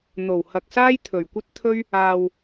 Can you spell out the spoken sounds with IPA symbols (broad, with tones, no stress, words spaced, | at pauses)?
n̪o˨˩whɐ˨k̚saː˥j t̪ʰɵ˨˩ɥkʷɐ˥t̚t̪ʰɵ˥ɥ | aː˧w